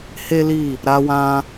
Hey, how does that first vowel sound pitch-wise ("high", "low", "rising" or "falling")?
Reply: high